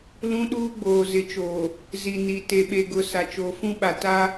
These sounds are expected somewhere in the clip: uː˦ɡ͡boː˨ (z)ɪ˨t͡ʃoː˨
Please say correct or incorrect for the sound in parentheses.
correct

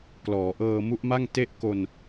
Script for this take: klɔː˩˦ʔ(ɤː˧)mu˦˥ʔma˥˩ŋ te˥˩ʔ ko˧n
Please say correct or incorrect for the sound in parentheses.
correct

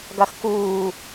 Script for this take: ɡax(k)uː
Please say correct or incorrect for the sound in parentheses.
correct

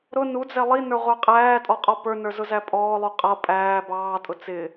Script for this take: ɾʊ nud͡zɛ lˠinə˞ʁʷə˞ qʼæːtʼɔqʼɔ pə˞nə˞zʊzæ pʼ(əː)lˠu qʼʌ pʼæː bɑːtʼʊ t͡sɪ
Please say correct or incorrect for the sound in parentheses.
incorrect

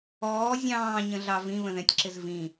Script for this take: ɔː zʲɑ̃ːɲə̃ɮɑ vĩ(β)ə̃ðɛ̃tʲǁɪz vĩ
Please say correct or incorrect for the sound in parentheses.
correct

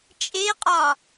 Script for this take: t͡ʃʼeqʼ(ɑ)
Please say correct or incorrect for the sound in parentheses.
incorrect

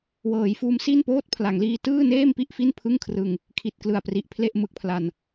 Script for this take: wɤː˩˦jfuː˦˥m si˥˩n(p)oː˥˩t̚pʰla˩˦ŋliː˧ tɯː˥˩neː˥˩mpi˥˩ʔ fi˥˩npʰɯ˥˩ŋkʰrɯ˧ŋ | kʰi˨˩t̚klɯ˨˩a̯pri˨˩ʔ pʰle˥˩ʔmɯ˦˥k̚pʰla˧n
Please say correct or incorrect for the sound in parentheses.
correct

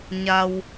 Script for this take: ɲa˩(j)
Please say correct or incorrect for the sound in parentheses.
incorrect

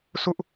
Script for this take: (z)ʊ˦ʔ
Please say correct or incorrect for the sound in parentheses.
incorrect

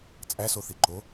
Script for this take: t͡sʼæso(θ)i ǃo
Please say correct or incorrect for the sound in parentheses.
correct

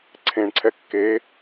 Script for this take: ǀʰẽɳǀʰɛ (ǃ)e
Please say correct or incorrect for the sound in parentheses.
incorrect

